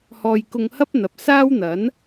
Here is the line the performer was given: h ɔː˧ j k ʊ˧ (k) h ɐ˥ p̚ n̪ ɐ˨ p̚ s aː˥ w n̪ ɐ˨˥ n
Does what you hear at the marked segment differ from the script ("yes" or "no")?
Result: yes